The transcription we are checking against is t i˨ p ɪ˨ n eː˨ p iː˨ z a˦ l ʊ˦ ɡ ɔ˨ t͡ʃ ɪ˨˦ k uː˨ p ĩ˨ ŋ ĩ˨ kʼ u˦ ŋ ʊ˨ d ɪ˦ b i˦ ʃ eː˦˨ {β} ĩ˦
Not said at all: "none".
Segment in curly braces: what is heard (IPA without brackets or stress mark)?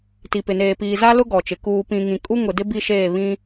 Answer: β